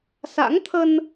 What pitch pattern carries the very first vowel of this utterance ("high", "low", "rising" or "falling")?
rising